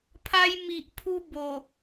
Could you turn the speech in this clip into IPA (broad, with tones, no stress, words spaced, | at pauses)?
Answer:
pʰa˧jmi˨ʔpʰu˧ bo˨˩